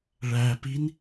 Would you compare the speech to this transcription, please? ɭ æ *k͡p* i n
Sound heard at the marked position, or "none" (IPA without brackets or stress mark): p